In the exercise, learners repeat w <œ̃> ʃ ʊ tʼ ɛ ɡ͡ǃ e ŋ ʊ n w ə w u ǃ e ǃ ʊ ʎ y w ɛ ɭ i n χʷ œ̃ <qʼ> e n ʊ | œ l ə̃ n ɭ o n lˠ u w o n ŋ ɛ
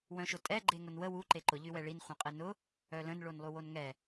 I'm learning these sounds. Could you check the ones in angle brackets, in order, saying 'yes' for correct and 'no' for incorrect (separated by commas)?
yes, yes